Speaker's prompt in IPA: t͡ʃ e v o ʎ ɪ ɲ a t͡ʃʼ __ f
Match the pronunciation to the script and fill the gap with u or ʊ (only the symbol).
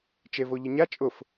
ʊ